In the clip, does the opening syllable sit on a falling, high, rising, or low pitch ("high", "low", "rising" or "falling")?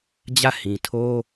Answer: falling